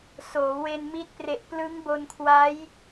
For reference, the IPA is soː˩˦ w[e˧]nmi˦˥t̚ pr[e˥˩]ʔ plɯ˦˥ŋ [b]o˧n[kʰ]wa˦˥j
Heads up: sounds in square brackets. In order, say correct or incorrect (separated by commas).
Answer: correct, incorrect, correct, correct